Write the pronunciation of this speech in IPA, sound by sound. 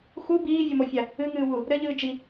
x u b iː vʲ ɔ m o fʲ a | ɨ ŋ ɨː w u | ɾ ɘ ʎ ɨː d͡ʒ i

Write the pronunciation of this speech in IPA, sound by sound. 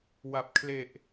w a˨˩ p̚ kʰ l e˨˩ ʔ

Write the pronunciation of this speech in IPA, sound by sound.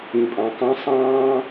ĩ˨ pʼ ɑ̃˨ k ɑ̃˦ sˤ ɑ̃ː˦

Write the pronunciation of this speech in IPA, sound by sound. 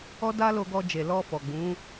ɔ˦ d a˦ l o˧ ɡ ɔ˧ d͡ʒ e˨ l ɔ˧ f ɔ˨ ɡ͡b ũ˨˦

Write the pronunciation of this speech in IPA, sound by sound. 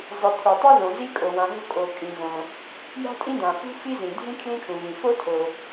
zˤ i˩ t̪ʰ u˩ tˤ o˥ ð õ˩ z i˥ kʼ o˩ w ã˩ ɦ o̤˥ kʼ o˩ kʼ ĩ˩ ɣ õ˩ | j a̤˥ tʼ ĩ˥ d̪ ã˩ f ṳ˥ f i˥ z ĩ˩ dʱ ĩ˥ kʰ l ĩ˥ kʰ ũ˩ v ĩ˩ f o˥ tʰ o˩

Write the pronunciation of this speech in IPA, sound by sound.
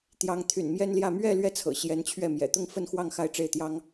t̪ j ɑ˧˥ ŋ t̪ʰ y̰˨˩ n m j ɛ˥ n l j ä˥˧ m ɥ ɛ˥˧ l ɥ ɛ˥˩ t͡sʰ ɤ̰˨˩ ɕ j ɛ˧˥ n t͡ɕʰ ɥ ɛ˥˩ m j ɛ̰˨˩ t̪ ʊ˥˧ ŋ f ə˥˧ n x w ɑ˥˧ ŋ x a˥˧ ɪ̯ ʈ͡ʂ e˥˩ ɪ̯ t̪ j ɑ˥ ŋ

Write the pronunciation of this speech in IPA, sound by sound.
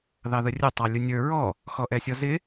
ð ɑ ð ə rʲ ʊ tˤ ɑ lʲ ʊ nʲ ə˞ ɹ ɔ | x ɔ ʔ ɛ sʲ ɔ z ɪ

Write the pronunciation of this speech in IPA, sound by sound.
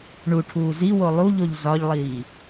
ɳ u ʈʰ uː z i w o lˠ u ʎ o ʎ z ɒ ʎ lˠ iː

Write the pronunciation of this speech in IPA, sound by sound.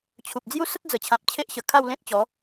t͡ɕʰ u˨ p̚ d͡z j u˦ s ə˦ t̚ d͡z ə˨˩ t͡ɕʰ ã˨ p̚ t͡ɕʰ e˦ ʔ ɕ ə˨˩ kʰ a˥˧ w l ẽ˦ t̚ t͡ɕ ɔ˨˦

